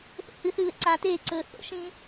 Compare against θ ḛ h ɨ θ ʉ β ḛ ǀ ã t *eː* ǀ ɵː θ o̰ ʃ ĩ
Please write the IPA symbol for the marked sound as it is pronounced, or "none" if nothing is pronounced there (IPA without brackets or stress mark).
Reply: eː